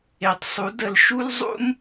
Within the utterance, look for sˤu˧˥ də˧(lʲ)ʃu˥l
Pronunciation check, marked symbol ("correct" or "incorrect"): incorrect